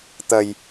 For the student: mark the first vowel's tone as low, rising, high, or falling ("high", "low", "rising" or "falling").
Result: low